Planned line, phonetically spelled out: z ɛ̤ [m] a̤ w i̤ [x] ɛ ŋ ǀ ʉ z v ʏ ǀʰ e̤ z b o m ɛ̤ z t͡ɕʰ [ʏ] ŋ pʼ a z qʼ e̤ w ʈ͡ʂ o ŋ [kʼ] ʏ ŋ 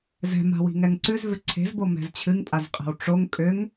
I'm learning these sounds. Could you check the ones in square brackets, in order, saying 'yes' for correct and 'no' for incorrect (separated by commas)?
yes, no, no, yes